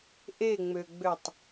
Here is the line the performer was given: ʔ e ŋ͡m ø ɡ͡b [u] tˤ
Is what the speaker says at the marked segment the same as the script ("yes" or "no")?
no